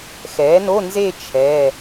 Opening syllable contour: rising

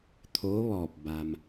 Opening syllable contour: rising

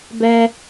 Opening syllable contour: high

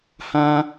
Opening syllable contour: high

